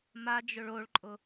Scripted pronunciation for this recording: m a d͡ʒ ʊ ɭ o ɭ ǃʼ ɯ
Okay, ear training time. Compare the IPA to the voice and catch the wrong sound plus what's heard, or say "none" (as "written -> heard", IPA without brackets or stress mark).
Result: ɯ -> ʊ